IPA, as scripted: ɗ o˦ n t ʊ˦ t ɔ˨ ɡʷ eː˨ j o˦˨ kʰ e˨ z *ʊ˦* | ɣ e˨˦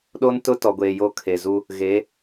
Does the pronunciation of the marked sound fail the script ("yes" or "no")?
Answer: yes